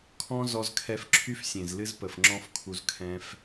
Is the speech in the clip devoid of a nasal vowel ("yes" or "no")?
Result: no